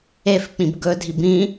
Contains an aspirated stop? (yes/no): no